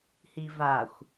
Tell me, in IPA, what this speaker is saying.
h i v a xʷ

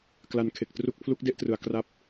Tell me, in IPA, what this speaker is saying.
k l a˨˩ n kʰ e˨˩ k̚ t r u˥˩ k̚ pʰ l u˦˥ k̚ d e˥˩ ʔ t r ɯ˩˦ a̯ k r a˦˥ p̚

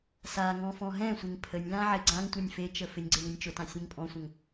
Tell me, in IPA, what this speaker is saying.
s a ŋ ɔ̃ f ɔ̃ ɦ ɛ̃ sʷ ɪ ŋ pʰ ə nʲ l ã ʕ ɪ ɡ͡ǀ ã ŋ tʷ ɜ nʲ f e t͡ʃ ə f ɪ nʲ ɡ͡ǀ e ŋ ə nʲ t͡ʃ ʊ t ã sʲ ẽ ŋ pʼ ɔ̃ sʷ ə̃ ŋ

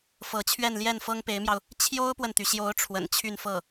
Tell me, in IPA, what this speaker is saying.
f ɤ˧˥ t͡ɕʰ ɥ ɛ˥˧ n l j ɛ˥˩ n f ɤ˥ ŋ p e˧˥ ɪ̯ m j ɑ˧ ʊ̯ | t͡ɕʰ j o˥ ʊ̯ p w ə˨ n t̪ y˩ ɕ j o˧˥ ʊ̯ ʈ͡ʂʰ w ə̰˨˩ n t͡ɕʰ y˥˧ n f ɤ˥˩

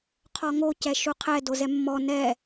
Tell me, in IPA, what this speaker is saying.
qʰ ɔ ŋ o c ɛ ʃ u qʰ ɛ d o z ɛ mː ɔ n ɛ

